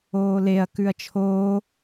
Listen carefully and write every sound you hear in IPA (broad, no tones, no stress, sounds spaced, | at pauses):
oː l e ɐ̯ k ʉ ɐ̯ t͡ʃʰ oː